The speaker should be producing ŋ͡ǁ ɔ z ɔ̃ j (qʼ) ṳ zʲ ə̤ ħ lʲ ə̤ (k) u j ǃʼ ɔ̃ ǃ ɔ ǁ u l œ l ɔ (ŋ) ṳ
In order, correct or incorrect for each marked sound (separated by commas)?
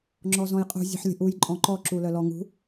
correct, incorrect, correct